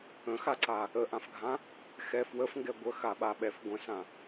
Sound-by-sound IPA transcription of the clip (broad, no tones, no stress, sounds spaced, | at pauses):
ə̃ x a ǀ a | ə ʔ ã f ɡʱ ã | x ɛ f w ə f ŋ ɡ ɛ ɡʷ ə x a ɓ a ɓ ɛ f ɡʷ ə̃ s ã